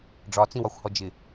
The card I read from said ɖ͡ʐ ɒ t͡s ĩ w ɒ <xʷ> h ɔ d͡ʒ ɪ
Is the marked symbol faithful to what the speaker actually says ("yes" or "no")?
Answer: yes